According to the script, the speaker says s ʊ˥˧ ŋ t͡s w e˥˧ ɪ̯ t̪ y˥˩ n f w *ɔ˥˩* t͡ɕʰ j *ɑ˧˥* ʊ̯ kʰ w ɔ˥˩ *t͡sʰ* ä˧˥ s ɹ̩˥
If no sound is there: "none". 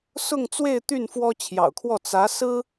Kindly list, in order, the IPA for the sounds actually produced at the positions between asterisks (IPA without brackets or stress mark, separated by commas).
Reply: ɔ˥, ɑ̰˨˩, t͡s